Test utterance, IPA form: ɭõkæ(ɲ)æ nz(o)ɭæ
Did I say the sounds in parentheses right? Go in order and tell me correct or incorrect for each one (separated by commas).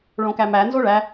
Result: incorrect, correct